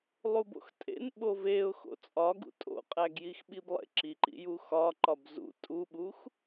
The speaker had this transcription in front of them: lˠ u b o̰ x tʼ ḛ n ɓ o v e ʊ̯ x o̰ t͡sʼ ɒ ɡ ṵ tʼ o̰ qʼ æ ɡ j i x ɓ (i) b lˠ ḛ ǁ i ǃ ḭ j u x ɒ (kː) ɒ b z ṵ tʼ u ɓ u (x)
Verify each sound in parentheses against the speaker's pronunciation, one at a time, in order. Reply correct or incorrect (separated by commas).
correct, incorrect, correct